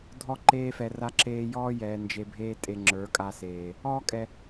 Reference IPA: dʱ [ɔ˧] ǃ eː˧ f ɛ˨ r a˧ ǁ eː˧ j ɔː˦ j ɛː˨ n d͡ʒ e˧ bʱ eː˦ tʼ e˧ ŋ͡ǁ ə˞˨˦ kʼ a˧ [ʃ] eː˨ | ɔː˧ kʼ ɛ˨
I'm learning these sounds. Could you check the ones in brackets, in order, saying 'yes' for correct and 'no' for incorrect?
yes, no

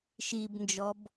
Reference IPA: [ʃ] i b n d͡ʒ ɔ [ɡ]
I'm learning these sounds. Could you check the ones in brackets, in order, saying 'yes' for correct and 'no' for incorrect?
yes, no

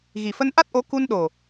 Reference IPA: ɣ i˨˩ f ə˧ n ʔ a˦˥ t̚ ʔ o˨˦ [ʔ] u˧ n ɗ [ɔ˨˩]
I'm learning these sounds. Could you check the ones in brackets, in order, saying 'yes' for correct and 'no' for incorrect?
no, no

